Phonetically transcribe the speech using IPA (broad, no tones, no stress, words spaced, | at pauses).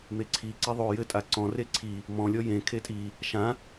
meǀʰi ǀeðˤo jɘ tʼaǀɔ̃ reǀʰi | mɔ̃ lʲɔjẽ kʰetʼi | ʃã